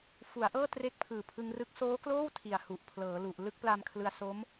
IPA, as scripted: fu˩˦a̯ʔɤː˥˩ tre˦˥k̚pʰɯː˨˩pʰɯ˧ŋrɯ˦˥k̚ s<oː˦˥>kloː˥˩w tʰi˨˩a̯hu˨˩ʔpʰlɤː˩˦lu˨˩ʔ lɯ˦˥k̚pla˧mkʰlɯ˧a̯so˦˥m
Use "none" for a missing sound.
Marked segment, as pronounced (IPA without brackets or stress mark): oː˦˥